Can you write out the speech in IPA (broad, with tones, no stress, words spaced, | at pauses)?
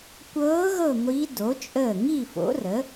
kʷɤː˧˥ ɣɤ˥˨ŋʷi˧˥do˩˥ t͡ʃʼəː˧˩ ŋi˥˨fo̰˩˥rə˩˥